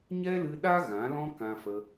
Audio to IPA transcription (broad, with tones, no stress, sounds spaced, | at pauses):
ɲ ɛ˦ l ɨ˧ ɗ a˦ ɣ ã˨˦ l ɔ̃˦ k ã˧ f ə˧